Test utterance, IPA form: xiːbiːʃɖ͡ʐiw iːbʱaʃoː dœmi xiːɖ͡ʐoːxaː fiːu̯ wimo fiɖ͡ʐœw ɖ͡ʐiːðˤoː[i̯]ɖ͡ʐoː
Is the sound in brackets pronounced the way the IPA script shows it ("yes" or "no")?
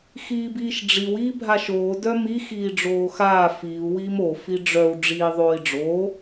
yes